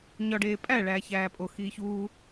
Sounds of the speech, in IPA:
ɲ ɒ ɖ eː pʼ æ ɭ æː ç æː pʼ o x iː ç uː

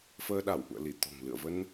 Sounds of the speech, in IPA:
f əː˧ ɗ a˧˩ w ʔ ṵ˧˨ ə̯ l i˧˩ t̪ ɔ̤˨˩ ŋ l ɨ̰˧˨ ə̯ v ə˧ n

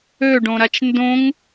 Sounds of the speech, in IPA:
ø ɖ õ ɾ a t͡ʃ n d õ ŋ

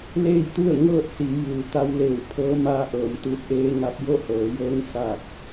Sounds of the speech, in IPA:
l eː˥˨ j t̪ u˥˨ ə̯ ŋ ɤː˥˨ t̚ s i˩˧ j ɯː˩ t̪ a˧ w l eː˧˩ w pʰ ɤː˧˥ m aː˧ ʔ ɤː˩˧ m t̪ ɯː˧ t̚ ʔ eː˧ ŋ a˧ p̚ j o˥˨ h ɤː˩˧ j ɤː˧˥ ŋ s aː˧˩ k̚

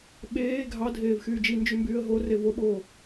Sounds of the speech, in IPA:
ɓ eː ɡʱ ɑ dʱ eː v x yː d͡ʒ i n d͡ʒ y m b yː ə̯ ɦ o r e v o ɓ oː

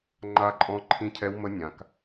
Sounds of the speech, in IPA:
ŋ͡ǃ a˦˥ ǃʼ ɔ̃˦˥ ǃʰ ĩ˦˥ cʰ ɛ˦˥ w m ə˦˥ nʲ ã˨ k

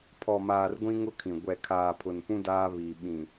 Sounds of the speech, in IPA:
pʰ ɔ˨ m aː˨ r ɡʷ ĩ˦ ŋ ʊ˦ kʰ ĩ˨ ɡʷ ɛ˨ kʰ aː˨ pʰ ʊ˨ n p ũ˦ d aː˦ β iː˨ ɓ ĩ˨

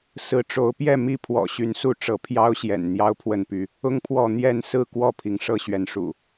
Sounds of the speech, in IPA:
s ɹ̩˨˦ ʈ͡ʂ o˨˦ ʊ̯ p j ɛ˥˨ m i˦ pʰ w ɔ̰˨˩ ɕ y˨˦ n s u˥˨ ʈ͡ʂ ɤ˨˦ pʰ j ɑ˦ ʊ̯ ɕ j ɛ̰˨˩ n n̪ j ɑ˦ ʊ̯ pʰ w ə˥˨ n p y˥˨ | ʊ˦ ŋ pʰ w ɔ˥˨ n̪ j ɛ˥˨ n s ɹ̩˥˨ k w ɔ˥˨ pʰ i˩ ŋ ʂ ɤ˥˨ ɕ ɥ ɛ˨˦ n ʂ ṵ˨˩

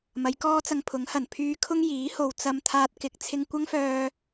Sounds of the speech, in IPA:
m ɐ˨˧ j k ɔː˥ t͡s ɐ˧ ŋ pʰ ʊ˨˥ ŋ h ɐ˨˩ n pʰ yː˧ kʰ ʊ˥ ŋ j iː˨˥ h o˧ w t͡s ɐ˥ m t̪ʰ aː˥ t̚ k ɪ˧ k̚ t͡sʰ ɪ˧ ŋ kʷ ɐ˥ ŋ f œː˧

